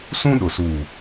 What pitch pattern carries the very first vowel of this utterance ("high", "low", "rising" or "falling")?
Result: high